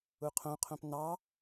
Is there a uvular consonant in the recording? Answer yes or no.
yes